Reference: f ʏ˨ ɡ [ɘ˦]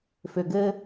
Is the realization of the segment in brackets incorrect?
no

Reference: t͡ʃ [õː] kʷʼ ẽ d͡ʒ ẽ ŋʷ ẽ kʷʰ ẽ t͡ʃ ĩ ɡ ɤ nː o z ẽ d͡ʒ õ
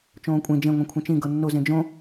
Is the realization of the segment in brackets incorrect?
no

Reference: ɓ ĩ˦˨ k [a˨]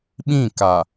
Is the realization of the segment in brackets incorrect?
no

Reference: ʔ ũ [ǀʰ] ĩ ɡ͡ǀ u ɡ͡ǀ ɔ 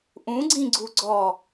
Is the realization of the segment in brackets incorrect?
yes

